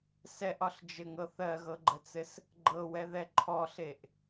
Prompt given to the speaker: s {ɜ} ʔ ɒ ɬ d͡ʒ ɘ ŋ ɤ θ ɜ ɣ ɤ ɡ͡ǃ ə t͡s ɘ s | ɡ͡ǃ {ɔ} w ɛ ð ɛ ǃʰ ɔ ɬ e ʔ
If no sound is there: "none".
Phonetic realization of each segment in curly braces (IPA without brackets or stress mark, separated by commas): ɛ, ɤ